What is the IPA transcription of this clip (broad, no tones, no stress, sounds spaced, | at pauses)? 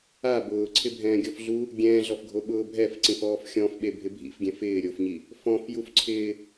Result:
a b ʊː ǀʰ ɪ bʱ ɛ̃ː ɡʲ ɔ f ɮ u | ɡʲ ɛ̃ː ɮ ɔ f ɡʱ o ɓ ʊː bʱ ɛ f ǀ ĩ f ɔː f xʲ ɔ̃ f ɓ e bʱ ɪ bʱ ḭ f ɡʲ ɛ̃ f ɪː ɾʲ o f ɲ i | f ɔ̃ f j u f ǀʰ ɪː